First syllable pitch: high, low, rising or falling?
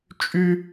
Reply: high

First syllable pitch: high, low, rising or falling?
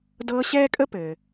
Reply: high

